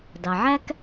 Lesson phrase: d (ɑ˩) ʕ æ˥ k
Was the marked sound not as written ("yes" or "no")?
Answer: no